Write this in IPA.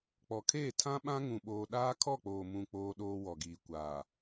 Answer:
k͡pɔ˨kʰeː˦˨tʰã˦ɓã˦ ŋũ˦ɓoː˦ ɗaː˦kʰɔ˦˨k͡poː˨mũ˨ k͡poː˦ɗoː˦ wɔ˨ɡiː˨kʷaː˨

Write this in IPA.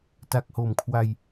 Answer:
ta˨˩k̚ho˨˩mkʰwa˧j

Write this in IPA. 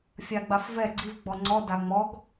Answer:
fʲaɡ͡bafvɛ ɡ͡ǀiv ɡ͡bɔŋ͡ǀɔ daŋ͡mɔɡ

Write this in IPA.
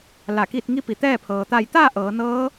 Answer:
la˧˩kiː˥˨t̚ ŋi˧pi˩ t̪ɛː˥˨pʰɤː˩ t̪a˧˩jt̪aː˥˨ ʔɤː˩˧nɤː˧˥

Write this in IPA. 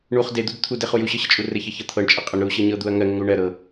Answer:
ɳuχ ded̪ud t̪ʰudeχuj uɕɤɕət͡ʃʼu rɘçəçɤ t̪ʰɤɳt͡ʃʼɘ qʼəɳ ɾuɕɤɲɤd̪uɐ̯ ŋɜŋɘŋɾu ɳɜɾɤ

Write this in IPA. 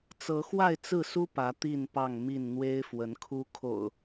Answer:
t͡sɤ˨˦xwa˥˨ɪ̯t͡sɹ̩˥˨su˦ pä˨˦t̪i˥˨npɑ˥˨ŋmi˥˨n n̪we˦ɪ̯fwə˨˦nkʰu˦ kʰo̰˨˩ʊ̯

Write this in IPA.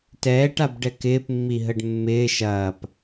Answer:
tɛːʈabɖɛ kɪːpmːiɦəɖ mːɪː ʃɐːp

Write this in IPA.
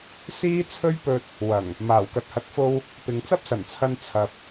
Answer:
siː˥t͡sʰɵ˥ɥpɵ˧t̚ | wɐ˨˩ŋ | maː˨˩wkɐ˨t̚hɐ˨˥t̚fo˧w | pɪ˨ŋt͡sɐ˥p̚sɐ˨˩nt͡sʰɐ˧n t͡sʰɐ˨p̚

